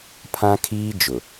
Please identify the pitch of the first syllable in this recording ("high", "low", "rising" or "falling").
high